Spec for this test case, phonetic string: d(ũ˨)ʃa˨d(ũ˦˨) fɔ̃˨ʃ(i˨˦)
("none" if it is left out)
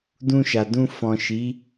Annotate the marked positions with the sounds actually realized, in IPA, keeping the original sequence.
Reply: ũ˧, ũ˧, i˨˦

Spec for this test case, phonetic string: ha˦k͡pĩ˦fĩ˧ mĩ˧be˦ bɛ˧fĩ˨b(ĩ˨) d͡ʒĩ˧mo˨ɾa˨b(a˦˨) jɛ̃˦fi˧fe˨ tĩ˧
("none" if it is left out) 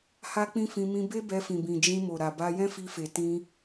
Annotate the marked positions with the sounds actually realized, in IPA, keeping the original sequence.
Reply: ĩ˨, a˧

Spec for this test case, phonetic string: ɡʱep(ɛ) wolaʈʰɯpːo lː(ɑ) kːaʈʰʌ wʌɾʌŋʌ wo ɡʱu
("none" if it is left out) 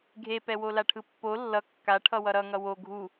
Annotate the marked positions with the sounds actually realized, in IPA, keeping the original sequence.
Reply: ɛ, ʌ

